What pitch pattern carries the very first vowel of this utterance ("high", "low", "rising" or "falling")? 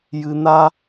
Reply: high